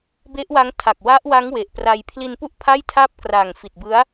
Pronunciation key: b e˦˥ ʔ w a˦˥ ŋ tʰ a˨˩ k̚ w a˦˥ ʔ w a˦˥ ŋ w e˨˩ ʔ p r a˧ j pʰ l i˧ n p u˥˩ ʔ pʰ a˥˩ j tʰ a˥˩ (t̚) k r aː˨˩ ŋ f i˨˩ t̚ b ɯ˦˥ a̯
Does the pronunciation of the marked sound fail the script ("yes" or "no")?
yes